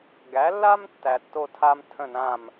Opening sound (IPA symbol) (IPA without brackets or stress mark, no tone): ɡ